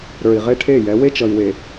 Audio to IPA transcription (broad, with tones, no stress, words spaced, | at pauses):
ɾə˞˨i̯ʁe˦ʈʰe˦˨jɛ˨˦ we˦t͡ʃʌ˨i̯we˨